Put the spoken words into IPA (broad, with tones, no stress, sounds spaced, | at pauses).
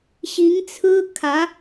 ɕ i˧˥ ŋ t͡sʰ ɹ̩˥ kʰ ä˧˥